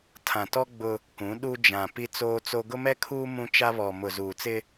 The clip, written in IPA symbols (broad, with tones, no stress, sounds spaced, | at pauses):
tʰ ã˨ t ɔ˦ ɡ͡b ʊ˦ | k ũ˨˦ ɗ u˦ d͡ʒ ã˨ p i˦ t͡s oː˦ t͡s o˦ ɡ ʊ˦ m ɛ˦ kʰ uː˦ m ũ˦ t͡ʃ a˦ β ɔ˨ m ʊ˨ z uː˨ t͡s ɪ˦